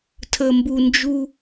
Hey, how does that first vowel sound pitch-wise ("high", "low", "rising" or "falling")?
low